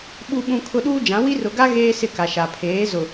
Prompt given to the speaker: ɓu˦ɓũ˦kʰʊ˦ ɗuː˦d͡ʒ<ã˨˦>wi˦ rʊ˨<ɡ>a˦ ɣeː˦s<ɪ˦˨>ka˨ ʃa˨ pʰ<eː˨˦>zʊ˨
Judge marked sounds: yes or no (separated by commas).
yes, yes, yes, yes